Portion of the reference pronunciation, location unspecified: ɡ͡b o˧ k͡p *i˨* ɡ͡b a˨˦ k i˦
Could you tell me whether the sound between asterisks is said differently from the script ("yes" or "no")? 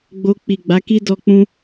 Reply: no